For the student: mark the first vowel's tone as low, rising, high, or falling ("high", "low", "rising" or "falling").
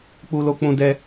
high